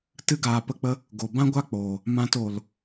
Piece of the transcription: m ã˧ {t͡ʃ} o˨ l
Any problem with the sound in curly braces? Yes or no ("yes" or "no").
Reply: yes